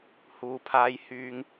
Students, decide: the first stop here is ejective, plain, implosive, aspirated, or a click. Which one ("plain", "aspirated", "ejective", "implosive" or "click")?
aspirated